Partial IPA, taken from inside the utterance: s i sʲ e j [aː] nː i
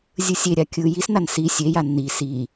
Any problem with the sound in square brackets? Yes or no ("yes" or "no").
yes